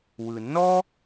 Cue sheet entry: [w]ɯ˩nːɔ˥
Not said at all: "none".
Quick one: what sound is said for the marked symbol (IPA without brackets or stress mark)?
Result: w